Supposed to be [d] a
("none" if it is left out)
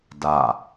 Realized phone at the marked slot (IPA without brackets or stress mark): d